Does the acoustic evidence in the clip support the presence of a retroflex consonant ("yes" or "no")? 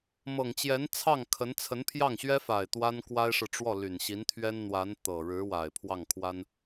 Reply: yes